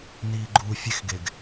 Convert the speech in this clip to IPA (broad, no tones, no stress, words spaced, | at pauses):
niːɡ͡ǃuːfʲexɡeɡ